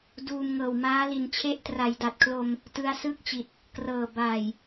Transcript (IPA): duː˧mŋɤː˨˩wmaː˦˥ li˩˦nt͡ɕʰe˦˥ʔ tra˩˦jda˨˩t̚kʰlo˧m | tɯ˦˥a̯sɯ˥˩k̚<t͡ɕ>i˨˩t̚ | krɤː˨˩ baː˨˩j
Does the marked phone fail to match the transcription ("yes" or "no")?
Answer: no